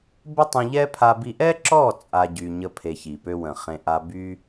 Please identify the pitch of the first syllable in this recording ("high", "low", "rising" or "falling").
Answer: high